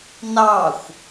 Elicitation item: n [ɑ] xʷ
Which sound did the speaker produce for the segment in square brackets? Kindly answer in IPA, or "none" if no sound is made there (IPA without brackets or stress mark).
ɑ